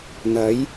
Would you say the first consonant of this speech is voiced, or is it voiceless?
voiced